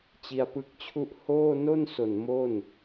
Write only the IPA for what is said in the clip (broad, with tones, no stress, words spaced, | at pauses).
t͡ɕi˧a̯pɯ˦˥k̚t͡ɕʰu˥˩ʔ hoː˥˩ no˥˩nso˨˩n mo˥˩n